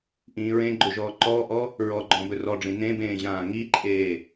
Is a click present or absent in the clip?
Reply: present